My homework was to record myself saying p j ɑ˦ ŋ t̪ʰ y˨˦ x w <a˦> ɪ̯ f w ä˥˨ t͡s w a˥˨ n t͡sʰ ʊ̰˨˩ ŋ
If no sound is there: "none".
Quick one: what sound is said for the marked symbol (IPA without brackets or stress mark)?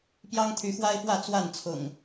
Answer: a˦